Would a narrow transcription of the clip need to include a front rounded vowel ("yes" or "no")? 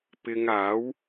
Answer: no